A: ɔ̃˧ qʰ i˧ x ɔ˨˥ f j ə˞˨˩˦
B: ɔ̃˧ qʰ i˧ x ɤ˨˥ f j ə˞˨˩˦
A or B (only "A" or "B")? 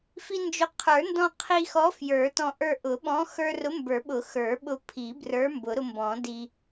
A